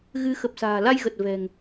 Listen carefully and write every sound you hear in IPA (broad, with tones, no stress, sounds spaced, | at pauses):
ɣ ɨ˨˦ x ə˨˩ p̚ s a̤ː˨˩ l a˧ j ɣ ə˨˩ t̚ v ɛ̤˨˩ ŋ